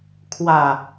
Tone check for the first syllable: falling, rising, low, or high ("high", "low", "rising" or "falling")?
low